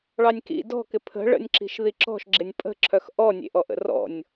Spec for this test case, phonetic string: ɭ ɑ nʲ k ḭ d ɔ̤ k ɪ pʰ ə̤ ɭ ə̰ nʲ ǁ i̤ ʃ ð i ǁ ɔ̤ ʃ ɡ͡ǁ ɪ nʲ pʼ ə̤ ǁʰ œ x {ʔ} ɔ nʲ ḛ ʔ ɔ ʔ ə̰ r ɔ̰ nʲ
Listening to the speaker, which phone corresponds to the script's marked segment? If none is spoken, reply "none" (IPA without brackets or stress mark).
ʔ